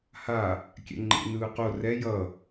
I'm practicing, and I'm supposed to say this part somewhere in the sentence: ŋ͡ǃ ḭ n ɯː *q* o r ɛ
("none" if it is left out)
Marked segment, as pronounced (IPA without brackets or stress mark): q